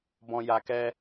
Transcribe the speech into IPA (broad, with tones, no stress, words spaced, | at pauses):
bɔ̃˨ja˨ kɛ˧